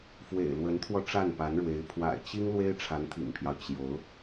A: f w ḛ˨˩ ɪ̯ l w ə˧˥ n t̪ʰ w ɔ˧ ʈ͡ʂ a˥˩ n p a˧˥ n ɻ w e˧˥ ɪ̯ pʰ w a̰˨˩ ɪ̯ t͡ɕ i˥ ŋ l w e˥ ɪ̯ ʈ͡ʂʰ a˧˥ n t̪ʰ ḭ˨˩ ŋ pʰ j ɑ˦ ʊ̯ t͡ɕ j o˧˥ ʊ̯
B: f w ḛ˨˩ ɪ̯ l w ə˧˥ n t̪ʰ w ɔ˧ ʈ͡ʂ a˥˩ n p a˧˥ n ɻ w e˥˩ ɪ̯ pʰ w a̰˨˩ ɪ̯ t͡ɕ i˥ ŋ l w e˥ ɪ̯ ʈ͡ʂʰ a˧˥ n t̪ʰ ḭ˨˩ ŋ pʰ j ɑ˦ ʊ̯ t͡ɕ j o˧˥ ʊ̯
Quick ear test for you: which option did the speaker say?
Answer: A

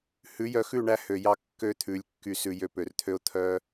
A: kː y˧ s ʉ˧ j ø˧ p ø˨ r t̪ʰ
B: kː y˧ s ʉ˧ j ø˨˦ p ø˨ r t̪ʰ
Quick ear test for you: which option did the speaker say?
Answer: A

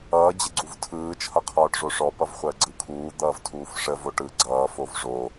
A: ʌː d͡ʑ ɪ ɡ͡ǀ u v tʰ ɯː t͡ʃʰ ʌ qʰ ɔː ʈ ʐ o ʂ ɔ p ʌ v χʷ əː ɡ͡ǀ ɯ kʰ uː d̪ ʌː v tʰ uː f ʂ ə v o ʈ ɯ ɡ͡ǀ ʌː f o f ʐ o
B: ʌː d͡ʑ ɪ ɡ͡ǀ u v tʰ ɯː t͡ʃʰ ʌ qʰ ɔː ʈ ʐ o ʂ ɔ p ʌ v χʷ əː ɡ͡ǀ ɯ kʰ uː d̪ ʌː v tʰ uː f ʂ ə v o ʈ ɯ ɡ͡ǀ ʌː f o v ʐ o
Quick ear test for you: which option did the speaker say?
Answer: B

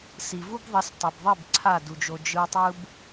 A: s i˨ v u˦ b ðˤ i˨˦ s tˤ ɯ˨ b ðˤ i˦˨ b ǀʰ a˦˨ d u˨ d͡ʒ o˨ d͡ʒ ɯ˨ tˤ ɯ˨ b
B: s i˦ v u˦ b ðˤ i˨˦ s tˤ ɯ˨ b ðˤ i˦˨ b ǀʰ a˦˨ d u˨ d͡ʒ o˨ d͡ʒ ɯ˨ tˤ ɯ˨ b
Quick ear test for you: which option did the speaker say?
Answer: A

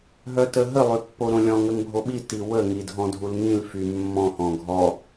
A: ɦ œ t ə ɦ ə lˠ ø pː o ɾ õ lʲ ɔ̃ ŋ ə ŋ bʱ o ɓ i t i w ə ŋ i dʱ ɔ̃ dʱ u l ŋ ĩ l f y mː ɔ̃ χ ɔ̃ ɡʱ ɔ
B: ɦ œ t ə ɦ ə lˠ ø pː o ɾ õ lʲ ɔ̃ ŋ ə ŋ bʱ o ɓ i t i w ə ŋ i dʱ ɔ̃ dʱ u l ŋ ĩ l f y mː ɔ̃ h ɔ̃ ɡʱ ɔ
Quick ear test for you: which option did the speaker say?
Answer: B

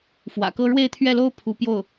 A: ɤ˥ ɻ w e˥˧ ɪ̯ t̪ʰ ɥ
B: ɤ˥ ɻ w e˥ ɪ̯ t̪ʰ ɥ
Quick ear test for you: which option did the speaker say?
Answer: A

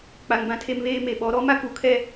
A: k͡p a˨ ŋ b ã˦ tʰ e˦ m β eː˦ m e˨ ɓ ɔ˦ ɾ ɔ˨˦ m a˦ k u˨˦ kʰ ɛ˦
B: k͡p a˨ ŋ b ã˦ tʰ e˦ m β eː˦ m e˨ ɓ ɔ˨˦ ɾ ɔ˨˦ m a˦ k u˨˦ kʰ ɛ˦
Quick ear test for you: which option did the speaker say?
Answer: B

